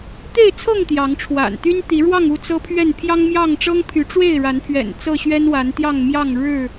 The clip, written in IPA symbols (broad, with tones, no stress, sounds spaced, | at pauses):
t̪ e˥˨ ɪ̯ t͡sʰ ɤ˥˨ ŋ t̪ j ɑ˨˦ ŋ ʈ͡ʂʰ w a̰˨˩ n t̪ y˦ n t̪ i˨˦ ɻ w ɑ˥˨ ŋ u˥˨ t͡s ɤ˦ pʰ ɥ ɛ˥˨ n pʰ j ɑ˦ ŋ m j ɑ˥˨ ŋ ʈ͡ʂ ɤ˦ ŋ pʰ y˨˦ ʈ͡ʂ w e˥˨ ɪ̯ ɻ a˨˦ n pʰ ɥ ɛ̰˨˩ n t͡s ɤ˥˨ ɕ ɥ ɛ˦ n w a˨˦ n t̪ j ɑ˥˨ ŋ m j ɑ˥˨ ŋ ɻ ɻ̩˥˨